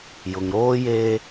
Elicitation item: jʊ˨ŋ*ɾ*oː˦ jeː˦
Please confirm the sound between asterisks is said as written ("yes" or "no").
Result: yes